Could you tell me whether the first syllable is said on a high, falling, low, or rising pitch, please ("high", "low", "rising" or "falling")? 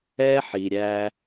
high